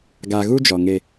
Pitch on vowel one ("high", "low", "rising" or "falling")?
low